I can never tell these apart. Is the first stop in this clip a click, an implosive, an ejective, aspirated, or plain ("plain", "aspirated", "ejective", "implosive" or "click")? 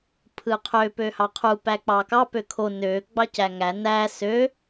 aspirated